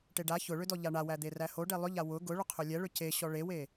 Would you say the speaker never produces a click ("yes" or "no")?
yes